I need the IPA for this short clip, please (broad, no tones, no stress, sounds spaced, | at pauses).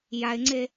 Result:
j a ɪ̯ ŋ͡ǀ e